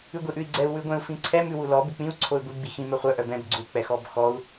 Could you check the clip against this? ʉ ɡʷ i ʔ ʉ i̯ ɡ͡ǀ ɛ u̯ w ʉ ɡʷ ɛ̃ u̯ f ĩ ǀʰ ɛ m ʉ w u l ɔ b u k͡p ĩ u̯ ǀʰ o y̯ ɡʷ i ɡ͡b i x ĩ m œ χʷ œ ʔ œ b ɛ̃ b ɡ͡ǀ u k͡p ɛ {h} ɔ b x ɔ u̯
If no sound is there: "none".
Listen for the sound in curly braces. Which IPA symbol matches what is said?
x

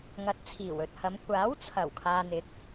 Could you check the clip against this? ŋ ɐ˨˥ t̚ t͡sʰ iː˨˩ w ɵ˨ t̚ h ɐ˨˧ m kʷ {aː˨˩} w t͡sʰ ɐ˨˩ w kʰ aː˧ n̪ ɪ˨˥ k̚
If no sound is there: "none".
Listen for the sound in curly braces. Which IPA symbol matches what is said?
aː˨˥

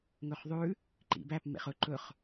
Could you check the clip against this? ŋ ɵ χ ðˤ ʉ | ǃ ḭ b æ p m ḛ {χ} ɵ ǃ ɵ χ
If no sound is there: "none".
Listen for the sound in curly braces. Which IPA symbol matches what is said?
χ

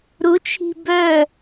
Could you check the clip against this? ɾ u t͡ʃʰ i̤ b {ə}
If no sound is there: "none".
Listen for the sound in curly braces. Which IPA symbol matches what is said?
œ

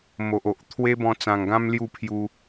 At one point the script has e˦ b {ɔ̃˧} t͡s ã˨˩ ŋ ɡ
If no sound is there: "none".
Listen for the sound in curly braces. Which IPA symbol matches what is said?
ɔ̃˧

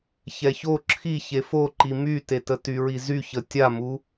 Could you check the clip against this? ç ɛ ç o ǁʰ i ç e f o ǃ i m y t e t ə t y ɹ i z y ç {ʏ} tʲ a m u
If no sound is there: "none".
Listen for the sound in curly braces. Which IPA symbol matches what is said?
ə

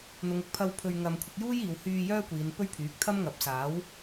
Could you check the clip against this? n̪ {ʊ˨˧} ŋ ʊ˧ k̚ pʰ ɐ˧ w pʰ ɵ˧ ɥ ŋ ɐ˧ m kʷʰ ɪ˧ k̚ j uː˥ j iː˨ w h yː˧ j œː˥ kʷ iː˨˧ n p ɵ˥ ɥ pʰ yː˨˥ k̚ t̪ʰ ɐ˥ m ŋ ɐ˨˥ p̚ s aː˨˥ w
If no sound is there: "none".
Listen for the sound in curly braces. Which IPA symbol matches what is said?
ʊ˨˧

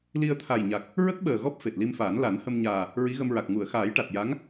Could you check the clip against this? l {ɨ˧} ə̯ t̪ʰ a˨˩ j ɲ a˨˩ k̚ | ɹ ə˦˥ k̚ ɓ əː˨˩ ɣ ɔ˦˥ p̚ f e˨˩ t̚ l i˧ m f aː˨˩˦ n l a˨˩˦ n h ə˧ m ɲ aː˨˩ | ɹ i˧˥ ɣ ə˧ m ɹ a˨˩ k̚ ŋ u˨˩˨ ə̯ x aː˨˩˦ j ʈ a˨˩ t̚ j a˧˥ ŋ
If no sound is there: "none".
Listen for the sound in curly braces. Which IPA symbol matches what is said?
i˧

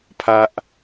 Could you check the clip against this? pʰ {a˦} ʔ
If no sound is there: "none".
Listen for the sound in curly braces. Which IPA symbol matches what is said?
a˦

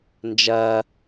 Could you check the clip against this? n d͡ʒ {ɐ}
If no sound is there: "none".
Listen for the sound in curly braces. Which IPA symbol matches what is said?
ɐ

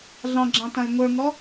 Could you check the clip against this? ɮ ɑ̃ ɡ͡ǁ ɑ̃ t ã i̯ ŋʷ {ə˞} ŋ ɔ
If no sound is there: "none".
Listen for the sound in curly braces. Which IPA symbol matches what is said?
ə˞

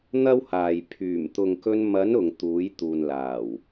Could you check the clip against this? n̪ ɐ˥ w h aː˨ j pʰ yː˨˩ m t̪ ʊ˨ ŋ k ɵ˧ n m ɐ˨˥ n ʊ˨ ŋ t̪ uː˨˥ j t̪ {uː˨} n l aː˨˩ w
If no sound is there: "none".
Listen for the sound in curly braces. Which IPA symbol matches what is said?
uː˨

